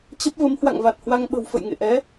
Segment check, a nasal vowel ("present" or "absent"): absent